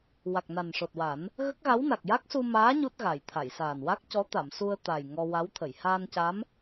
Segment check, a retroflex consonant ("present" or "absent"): present